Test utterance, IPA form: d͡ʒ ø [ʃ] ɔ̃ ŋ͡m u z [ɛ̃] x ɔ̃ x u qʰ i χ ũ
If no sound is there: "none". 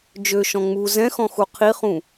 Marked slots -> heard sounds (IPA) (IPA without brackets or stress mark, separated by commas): ʃ, ɛ̃